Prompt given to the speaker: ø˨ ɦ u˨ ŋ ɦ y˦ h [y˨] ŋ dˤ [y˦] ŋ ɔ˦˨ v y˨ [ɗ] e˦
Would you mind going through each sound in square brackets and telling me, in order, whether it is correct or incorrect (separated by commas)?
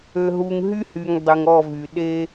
correct, incorrect, correct